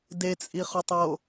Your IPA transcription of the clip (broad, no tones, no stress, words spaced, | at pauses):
det͡sʼiχotˤ o